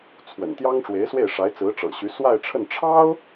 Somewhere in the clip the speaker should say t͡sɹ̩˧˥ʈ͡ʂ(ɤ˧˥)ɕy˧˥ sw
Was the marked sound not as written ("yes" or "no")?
yes